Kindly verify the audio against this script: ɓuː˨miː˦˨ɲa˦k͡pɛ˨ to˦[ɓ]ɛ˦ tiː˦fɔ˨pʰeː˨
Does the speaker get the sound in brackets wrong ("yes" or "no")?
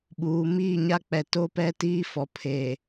yes